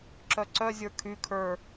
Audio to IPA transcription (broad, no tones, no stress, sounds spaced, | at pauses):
ǁ œ ǀ œ zʲ ə˞ kʰ y kʰ ə˞